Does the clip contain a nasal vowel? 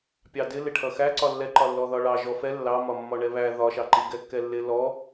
no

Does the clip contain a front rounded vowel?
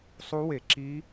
no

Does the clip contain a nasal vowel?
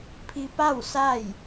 no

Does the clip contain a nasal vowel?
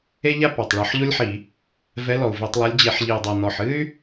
no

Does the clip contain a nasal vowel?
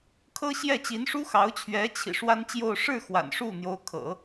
no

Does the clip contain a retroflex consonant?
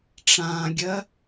yes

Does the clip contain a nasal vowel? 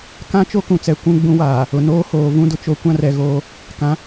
yes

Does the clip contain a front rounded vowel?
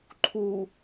no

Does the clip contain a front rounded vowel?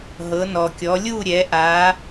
no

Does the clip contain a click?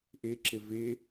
yes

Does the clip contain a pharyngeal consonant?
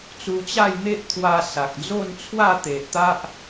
no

